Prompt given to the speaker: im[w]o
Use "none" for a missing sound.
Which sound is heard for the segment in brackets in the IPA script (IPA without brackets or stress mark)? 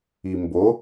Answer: b